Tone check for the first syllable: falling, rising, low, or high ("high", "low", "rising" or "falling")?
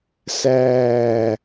falling